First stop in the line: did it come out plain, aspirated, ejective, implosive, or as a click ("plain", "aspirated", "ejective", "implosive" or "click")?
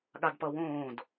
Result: implosive